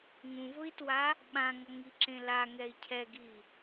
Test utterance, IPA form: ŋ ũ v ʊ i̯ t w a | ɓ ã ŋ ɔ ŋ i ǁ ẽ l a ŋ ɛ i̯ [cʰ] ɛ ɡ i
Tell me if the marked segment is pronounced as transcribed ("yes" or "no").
yes